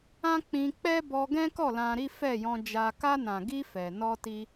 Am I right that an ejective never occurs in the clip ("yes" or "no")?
yes